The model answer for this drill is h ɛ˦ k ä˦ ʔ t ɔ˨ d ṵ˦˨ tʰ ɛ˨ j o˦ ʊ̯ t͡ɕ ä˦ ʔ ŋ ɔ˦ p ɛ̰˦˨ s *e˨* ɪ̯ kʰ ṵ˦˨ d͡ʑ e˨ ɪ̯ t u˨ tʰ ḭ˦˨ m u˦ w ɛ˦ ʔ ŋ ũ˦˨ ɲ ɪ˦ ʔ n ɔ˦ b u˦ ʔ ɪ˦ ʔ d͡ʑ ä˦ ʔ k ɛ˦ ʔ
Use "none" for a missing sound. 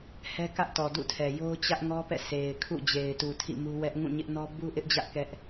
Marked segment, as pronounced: e˨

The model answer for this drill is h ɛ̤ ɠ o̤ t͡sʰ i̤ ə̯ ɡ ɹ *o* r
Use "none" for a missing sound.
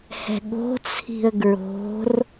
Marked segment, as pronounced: o̤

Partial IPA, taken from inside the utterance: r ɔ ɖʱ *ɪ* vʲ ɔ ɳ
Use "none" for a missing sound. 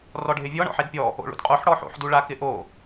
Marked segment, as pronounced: ɪ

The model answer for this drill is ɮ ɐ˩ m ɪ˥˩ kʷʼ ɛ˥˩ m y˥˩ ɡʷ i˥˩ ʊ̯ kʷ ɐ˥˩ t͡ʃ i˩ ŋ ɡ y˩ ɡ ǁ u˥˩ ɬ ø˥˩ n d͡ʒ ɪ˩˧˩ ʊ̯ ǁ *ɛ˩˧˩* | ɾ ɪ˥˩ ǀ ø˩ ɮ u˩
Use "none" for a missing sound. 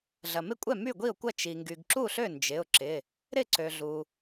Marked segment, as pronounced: ɪ˩˧˩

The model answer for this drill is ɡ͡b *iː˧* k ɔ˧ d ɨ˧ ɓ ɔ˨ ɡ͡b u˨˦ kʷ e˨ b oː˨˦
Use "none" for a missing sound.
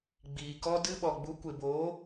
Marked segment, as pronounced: iː˨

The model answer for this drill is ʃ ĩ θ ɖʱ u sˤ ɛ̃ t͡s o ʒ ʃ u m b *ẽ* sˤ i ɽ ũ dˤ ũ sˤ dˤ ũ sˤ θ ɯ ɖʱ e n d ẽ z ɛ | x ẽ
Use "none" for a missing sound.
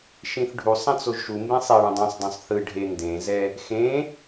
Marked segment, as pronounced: ẽ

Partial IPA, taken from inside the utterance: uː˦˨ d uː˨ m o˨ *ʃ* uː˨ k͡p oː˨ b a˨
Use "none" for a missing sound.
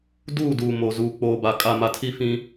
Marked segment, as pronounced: z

